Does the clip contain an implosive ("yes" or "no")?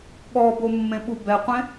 yes